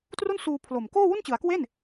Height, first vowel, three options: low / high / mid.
high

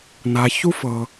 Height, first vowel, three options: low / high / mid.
low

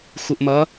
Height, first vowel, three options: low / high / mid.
high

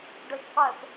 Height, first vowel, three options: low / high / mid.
mid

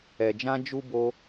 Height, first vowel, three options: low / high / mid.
mid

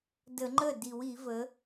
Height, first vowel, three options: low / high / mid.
mid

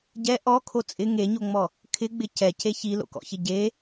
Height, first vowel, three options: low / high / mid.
mid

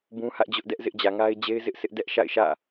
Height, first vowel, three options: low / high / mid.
high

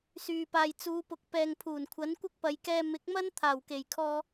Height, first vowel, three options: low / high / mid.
high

